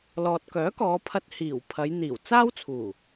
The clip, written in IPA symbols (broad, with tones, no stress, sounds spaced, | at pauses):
l ɔː˨ t̚ k œː˨˥ k ɔː˨˧ pʰ ɐ˧ t̚ h iː˨˩ w pʰ ɐ˨˧ j n̪ iː˨˩ w t͡s aː˥ w t͡sʰ uː˨˩